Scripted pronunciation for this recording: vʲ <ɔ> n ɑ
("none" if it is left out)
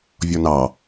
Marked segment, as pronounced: ɔ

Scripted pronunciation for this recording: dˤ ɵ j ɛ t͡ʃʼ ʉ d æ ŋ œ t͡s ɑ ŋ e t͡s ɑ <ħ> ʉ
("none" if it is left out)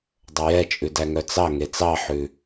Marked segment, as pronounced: ħ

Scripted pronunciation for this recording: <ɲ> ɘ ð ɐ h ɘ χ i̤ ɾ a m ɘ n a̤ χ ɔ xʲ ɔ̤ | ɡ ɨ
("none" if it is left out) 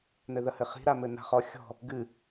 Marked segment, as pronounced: n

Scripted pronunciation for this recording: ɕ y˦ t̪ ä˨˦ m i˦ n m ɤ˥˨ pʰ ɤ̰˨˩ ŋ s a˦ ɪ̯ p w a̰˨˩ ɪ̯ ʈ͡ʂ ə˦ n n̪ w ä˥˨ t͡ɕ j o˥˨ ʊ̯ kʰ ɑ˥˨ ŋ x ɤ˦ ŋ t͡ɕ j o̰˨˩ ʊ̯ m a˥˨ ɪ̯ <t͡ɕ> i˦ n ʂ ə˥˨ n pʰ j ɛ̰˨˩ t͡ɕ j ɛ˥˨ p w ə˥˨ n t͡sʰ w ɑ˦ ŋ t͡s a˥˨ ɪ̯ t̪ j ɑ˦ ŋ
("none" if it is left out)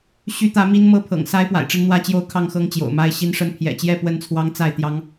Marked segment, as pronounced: ɕ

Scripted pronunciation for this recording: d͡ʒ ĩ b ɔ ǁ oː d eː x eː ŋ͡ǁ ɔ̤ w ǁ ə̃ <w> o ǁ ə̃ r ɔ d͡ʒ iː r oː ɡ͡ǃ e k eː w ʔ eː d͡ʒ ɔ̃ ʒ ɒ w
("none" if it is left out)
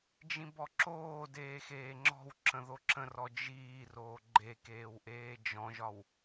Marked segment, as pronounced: ð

